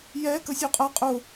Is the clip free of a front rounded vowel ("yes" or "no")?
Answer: yes